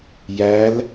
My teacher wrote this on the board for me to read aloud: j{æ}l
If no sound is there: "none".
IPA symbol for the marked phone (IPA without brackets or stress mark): æ